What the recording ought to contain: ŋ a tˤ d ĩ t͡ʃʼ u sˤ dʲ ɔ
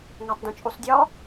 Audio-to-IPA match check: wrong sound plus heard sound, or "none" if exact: none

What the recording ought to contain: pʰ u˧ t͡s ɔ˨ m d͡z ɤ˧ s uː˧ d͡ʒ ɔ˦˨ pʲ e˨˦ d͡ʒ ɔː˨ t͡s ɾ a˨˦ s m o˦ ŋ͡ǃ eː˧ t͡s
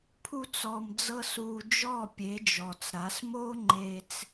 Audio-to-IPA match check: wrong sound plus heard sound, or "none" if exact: none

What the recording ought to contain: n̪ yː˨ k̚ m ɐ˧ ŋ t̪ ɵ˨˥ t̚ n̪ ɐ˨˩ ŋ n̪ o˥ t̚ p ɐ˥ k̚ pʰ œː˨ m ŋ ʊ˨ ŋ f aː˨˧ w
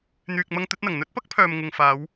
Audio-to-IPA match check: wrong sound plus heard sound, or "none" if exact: o˥ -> ɵ˥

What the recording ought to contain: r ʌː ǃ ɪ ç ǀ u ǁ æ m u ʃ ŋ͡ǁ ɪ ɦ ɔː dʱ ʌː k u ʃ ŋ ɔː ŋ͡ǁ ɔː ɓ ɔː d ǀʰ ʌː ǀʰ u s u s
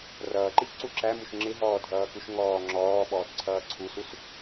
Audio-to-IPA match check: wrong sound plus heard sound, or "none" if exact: none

